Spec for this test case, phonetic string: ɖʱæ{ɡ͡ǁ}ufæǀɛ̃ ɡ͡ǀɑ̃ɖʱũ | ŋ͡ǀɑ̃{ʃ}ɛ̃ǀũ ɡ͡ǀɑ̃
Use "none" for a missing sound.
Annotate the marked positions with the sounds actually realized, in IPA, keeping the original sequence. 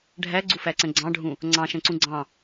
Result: ɡ͡ǀ, ʃ

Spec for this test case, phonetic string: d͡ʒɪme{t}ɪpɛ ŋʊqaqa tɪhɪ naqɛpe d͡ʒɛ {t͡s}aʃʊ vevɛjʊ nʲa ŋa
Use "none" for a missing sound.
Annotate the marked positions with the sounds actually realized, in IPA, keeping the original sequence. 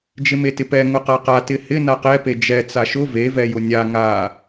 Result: t, t͡s

